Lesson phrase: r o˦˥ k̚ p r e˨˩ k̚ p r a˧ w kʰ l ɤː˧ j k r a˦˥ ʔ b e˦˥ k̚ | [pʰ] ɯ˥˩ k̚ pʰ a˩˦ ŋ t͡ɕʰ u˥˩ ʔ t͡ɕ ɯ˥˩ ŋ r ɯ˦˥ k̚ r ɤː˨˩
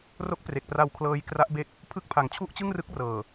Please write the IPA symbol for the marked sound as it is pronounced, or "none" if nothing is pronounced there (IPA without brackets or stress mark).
pʰ